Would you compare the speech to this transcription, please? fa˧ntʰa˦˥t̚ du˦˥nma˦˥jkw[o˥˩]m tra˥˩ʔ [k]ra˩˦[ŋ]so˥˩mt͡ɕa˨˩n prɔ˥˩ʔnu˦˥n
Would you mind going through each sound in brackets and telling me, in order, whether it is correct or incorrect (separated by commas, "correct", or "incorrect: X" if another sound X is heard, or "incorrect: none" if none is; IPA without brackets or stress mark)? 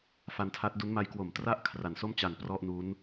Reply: incorrect: o˨˩, incorrect: kʰ, incorrect: n